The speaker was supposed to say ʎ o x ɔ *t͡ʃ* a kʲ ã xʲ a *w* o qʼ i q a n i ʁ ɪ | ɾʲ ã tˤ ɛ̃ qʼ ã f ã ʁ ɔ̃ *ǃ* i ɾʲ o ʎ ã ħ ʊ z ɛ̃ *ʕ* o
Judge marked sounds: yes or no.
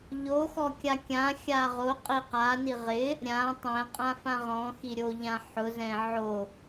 no, no, no, yes

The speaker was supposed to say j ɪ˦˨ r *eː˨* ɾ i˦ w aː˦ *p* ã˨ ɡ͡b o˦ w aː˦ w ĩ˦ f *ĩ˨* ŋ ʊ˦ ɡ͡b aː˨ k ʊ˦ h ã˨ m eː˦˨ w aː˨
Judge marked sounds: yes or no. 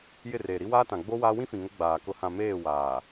yes, no, yes

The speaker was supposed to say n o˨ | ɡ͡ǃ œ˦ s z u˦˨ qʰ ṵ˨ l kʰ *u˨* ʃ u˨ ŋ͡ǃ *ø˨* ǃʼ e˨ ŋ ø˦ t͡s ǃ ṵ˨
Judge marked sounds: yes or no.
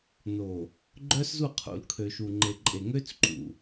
no, no

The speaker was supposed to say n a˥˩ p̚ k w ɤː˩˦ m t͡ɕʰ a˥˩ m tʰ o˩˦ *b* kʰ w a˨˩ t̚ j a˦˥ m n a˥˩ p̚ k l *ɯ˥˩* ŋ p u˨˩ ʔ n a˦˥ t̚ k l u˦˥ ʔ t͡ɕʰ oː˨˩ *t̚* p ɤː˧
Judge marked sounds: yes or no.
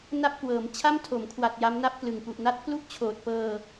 no, no, yes

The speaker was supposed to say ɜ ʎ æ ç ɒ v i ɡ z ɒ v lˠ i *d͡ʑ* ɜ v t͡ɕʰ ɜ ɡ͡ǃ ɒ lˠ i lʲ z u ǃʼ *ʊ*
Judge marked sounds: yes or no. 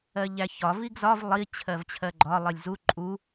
no, no

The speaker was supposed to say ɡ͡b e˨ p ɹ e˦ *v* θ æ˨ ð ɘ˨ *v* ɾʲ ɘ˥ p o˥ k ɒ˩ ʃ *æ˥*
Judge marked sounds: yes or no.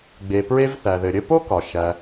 yes, no, no

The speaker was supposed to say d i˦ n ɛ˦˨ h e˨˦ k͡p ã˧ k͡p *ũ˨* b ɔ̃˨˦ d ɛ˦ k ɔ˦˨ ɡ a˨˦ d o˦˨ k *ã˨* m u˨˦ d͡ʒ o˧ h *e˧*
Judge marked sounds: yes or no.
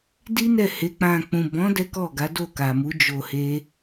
yes, no, no

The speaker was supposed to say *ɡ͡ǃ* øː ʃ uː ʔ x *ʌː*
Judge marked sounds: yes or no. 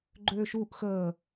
yes, no

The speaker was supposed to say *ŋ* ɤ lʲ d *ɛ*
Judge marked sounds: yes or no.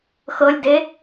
no, no

